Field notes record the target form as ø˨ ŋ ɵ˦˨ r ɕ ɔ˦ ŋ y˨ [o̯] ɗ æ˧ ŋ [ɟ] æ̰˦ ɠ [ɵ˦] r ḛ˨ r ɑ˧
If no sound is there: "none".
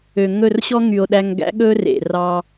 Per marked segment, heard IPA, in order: o̯, ɡ, ɵ˦

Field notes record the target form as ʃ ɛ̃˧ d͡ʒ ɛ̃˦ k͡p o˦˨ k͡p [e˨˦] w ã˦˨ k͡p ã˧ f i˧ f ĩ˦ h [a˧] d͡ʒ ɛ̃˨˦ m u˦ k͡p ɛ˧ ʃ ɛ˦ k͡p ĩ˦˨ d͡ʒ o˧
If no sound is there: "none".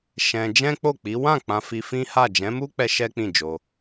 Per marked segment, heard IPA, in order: i˨˦, a˦˨

